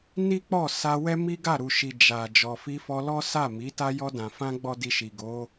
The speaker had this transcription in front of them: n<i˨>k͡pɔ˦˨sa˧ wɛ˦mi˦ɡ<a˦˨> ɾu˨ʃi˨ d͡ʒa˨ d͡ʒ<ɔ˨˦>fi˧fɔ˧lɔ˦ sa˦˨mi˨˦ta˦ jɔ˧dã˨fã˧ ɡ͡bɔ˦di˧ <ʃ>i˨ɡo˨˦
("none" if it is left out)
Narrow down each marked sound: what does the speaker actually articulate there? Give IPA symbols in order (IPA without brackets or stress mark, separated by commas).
i˦, a˦˨, ɔ˨, ʃ